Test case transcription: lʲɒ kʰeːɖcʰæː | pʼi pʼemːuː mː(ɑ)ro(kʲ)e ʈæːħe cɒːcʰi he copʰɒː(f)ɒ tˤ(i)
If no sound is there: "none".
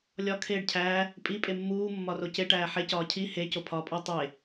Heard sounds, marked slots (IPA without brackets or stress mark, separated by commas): ɒ, c, pʼ, e